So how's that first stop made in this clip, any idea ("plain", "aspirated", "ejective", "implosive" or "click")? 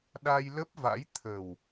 implosive